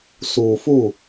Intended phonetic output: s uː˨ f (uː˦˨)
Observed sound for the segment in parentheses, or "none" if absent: u˦˨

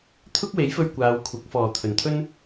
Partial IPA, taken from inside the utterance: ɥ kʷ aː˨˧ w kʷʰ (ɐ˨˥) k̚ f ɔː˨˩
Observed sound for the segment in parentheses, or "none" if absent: ɐ˨˥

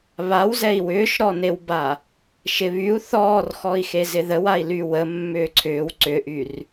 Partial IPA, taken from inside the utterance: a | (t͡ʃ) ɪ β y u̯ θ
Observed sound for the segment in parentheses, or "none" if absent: ʃ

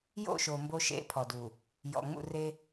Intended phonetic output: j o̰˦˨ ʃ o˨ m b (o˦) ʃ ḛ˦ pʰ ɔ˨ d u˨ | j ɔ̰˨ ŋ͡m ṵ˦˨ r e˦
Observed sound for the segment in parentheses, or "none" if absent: o˦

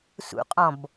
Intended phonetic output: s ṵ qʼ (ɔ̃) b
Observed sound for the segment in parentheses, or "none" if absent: ɔ̃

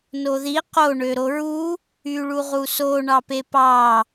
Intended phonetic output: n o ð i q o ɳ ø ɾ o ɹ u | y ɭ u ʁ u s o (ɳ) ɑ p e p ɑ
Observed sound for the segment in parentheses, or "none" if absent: ɳ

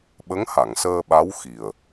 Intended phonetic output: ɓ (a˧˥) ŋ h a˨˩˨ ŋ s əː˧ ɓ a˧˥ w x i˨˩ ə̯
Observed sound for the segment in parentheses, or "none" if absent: ə˧˥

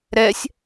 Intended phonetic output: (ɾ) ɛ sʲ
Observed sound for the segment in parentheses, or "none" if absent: ɾ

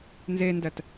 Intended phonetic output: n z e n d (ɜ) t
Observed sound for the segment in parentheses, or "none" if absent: ɜ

